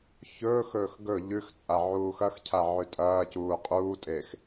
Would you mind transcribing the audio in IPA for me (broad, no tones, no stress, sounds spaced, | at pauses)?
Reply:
ç ɵː x ɵː x ɡ ɵ ʎ ʉ x t͡sʼ a ʕ uː x ɐ x cʰ a ʕ ʉ tʼ ɐː c uː qʼ uː tʼ e x